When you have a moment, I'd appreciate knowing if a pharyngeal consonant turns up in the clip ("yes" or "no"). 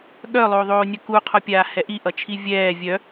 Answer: no